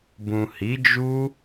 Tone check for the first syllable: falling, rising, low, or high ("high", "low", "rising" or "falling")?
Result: low